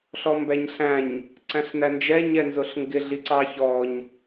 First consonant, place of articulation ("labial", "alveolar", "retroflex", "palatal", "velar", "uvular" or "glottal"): alveolar